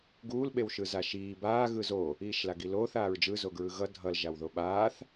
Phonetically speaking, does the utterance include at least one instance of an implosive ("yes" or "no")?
yes